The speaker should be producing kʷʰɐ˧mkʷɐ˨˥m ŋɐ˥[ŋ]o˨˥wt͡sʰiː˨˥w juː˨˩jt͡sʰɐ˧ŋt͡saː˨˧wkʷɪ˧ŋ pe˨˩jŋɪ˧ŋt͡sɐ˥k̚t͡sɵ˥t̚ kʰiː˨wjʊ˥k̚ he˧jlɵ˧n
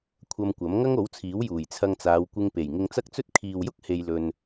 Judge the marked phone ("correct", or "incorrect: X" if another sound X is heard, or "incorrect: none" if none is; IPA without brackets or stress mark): correct